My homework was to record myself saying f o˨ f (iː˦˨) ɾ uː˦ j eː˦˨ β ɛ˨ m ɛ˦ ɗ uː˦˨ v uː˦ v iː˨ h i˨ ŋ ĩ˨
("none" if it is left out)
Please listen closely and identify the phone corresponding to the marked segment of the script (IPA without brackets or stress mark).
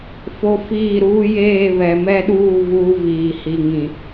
iː˦˨